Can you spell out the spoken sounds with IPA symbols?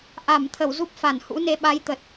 ʔ a˧˩ m t̪ʰ ə˧˩ w z u˦˥ p̚ f a˧˩ n h ṵ˧˥ n e˨˦ ɓ a˨˦ j t̪ ə˨˩ t̚

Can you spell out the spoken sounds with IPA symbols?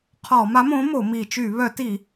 qʰ ɔ˧˩˧ m a˨˥ m õ˨˥ m o˧˩˧ m i˧˩˧ t͡ʃ y˧˩˧ β œ˧˩˧ t i˧˩˧

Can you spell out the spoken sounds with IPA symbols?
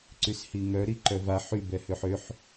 ǀ y s h i ŋ œ ɾ i ǃ œ v a ħ y b ɛ h ø ħ ø ħ

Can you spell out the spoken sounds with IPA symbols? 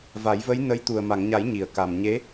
v a˨˩˦ j v ə˧˥ j n ə˧˥ j t̪ u˨˩ ə̯ m a˨˩˨ ŋ ɲ a˨˩˦ j ɲ i˨˩˨ ə̯ k a˨˩ m ɲ e˧˥

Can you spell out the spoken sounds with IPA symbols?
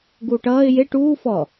ɡ uː ʈ ʌː ɪ̯ j e ʈ uː f ɔ

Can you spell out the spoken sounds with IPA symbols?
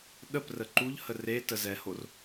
ɗ ə p r ə ǃ u ʎ h ə r e t ə z ɛ h o r

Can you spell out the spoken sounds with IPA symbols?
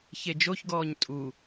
ç e d͡ʒ o ç ɡ ɔː ɲ tʼ u

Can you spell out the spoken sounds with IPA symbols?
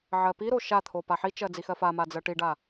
ʕ ɜ p i ɾ o ʃ a t̪ʰ o p a ħ i t͡ʃ ɜ d͡z i x ɜ f a m a d͡z ɜ ʈ i ɖ a

